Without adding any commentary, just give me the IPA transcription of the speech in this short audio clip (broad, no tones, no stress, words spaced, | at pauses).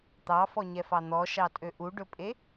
t̪ɑfɔɲɛfɑ n̪ɔʃɑtʼø ʔuɖɵpʼe